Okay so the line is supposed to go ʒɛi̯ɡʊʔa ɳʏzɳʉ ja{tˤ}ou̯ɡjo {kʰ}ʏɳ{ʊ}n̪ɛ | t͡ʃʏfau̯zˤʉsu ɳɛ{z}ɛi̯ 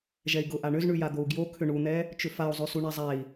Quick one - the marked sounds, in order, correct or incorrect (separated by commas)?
incorrect, correct, incorrect, incorrect